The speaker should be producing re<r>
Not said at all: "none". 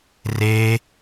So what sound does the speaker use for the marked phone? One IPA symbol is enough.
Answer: none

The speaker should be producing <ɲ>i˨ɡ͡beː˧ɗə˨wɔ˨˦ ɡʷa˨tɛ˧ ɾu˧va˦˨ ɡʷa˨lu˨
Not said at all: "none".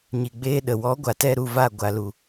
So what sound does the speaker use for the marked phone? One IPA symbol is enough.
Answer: ɲ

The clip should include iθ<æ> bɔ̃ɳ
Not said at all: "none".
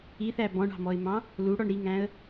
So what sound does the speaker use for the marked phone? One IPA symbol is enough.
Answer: æ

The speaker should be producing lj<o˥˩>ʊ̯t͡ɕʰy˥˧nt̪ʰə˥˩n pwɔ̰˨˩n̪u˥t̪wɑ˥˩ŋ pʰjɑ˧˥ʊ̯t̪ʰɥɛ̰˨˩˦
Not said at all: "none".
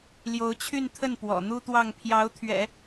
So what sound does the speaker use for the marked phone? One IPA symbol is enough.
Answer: o˧˥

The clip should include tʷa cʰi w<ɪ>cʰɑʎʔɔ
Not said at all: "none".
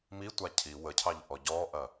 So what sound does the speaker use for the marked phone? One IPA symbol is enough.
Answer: ə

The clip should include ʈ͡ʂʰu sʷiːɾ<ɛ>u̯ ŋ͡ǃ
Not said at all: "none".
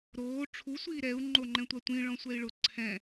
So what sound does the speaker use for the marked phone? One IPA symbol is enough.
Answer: ɛ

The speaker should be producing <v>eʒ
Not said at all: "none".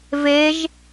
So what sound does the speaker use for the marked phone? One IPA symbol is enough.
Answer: v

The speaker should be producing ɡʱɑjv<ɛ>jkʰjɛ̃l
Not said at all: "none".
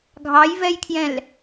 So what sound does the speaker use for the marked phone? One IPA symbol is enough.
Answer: ɛ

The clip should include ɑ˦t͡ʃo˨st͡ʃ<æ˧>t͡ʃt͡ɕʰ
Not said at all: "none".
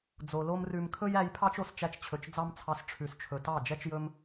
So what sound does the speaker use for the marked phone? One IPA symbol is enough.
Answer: æ˧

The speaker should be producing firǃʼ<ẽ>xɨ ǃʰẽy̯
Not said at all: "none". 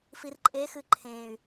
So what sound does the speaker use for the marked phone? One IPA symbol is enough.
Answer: e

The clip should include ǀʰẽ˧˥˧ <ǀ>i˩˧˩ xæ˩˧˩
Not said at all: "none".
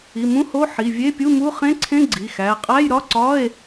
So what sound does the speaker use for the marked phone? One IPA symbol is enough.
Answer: ɡ͡ǀ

